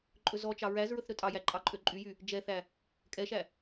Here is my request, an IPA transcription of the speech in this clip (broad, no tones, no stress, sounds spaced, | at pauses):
ǃʼ ɵ z ɔ t͡ʃ ɑ ɹ æ z ɹ ɵ θ ɾ ɵ tʼ ɑ j æ ǃʼ ɑ ǃʼ ø ǃʼ y j y | d͡ʒ ɛ θ æ | kʼ ɛ ʃ æ